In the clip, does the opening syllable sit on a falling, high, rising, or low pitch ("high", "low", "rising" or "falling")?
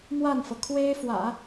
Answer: falling